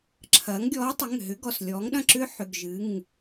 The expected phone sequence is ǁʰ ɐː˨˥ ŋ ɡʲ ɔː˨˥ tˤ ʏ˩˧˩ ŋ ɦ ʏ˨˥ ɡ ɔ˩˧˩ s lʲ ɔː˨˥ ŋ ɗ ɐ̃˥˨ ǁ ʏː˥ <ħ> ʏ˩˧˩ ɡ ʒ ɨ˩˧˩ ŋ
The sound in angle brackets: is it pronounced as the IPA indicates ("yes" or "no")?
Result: yes